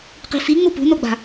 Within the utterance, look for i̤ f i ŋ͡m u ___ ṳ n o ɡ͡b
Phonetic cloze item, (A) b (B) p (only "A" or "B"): B